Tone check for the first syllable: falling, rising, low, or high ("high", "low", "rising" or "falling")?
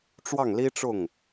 falling